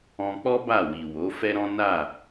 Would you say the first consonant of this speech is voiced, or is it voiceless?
voiceless